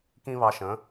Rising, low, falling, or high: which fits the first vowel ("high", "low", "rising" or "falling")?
high